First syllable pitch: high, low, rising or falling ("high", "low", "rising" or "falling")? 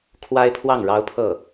high